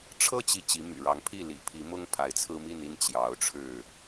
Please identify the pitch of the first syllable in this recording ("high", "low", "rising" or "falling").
high